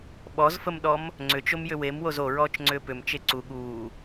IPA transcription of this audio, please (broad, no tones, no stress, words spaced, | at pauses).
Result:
ɓɔzfəmɗɔm | ŋ͡ǀʏt͡ʃomjʏ wemwoz oɹɔːt͡ʃŋ͡ǀʏː pʏmt͡ʃe ǀu ɠuː